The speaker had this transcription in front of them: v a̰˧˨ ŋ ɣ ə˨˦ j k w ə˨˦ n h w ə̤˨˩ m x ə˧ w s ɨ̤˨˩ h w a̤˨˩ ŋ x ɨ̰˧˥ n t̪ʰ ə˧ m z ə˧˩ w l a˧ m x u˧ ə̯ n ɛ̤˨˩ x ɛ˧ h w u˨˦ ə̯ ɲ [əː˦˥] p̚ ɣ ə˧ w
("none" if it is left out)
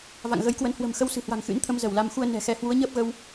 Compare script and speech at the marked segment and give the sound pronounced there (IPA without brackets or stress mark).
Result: əː˦˥